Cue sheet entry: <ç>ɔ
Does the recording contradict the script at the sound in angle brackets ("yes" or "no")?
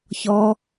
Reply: no